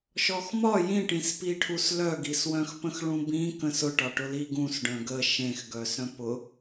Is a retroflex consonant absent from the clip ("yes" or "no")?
no